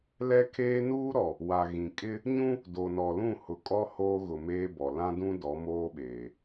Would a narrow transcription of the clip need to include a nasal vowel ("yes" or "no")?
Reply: yes